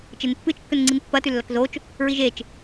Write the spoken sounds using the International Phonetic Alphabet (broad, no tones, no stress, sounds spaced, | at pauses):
t͡ʃ e n pː ɨ t͡ʃ kː ɵ n ŋ͡ǀ i n pː ɐ t ʉ lː ɐ k z o t͡ʃ | ɹ i ʒ e t͡ʃ